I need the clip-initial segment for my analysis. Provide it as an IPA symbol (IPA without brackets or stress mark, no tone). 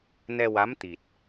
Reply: n